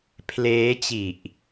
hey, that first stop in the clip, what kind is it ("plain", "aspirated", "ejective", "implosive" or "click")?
aspirated